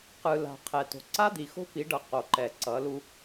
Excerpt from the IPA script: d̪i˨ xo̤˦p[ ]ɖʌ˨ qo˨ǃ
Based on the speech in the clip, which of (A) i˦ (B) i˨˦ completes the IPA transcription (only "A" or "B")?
B